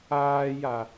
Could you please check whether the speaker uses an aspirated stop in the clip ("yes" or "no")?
no